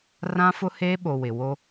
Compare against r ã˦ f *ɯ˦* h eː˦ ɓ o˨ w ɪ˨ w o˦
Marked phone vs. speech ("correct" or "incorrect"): incorrect